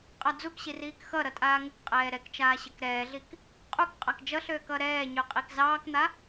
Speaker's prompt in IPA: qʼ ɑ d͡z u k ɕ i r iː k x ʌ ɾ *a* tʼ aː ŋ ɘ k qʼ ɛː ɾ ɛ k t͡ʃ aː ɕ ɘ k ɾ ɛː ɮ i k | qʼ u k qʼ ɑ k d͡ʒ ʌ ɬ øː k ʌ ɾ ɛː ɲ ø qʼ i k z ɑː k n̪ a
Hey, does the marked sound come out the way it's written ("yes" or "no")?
no